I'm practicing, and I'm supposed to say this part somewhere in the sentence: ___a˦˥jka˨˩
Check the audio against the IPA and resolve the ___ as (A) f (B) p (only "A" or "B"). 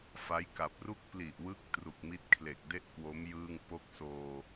A